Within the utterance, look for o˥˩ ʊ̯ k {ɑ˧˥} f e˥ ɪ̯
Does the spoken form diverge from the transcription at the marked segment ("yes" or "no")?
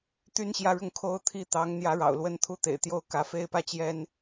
yes